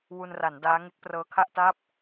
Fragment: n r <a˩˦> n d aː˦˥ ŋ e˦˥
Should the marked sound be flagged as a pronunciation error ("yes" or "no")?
no